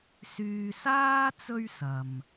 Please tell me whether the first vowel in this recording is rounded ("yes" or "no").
yes